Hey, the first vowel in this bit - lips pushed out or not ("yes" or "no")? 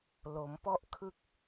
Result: yes